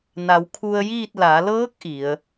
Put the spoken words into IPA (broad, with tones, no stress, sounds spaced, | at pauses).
n a˩˧ w kʰ u˧ ə̯ j iː˥˨ t̚ l a˩˧ l ɤː˧˥ k̚ ʔ i˩˧ ə̯